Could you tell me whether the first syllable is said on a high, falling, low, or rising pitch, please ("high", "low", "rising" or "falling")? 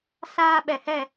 high